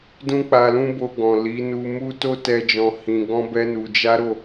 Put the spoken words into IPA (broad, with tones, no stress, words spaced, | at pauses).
dũ˦k͡pa˧lũ˦ bo˧ɡɔ̃˨li˨˦ nu˧mu˦ to˦tɛ˧d͡ʒɔ̃˧ hĩ˧ ɡɔ̃˦bɛ˦nu˧ d͡ʒa˦ɾo˦˨